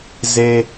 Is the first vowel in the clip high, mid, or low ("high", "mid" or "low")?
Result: mid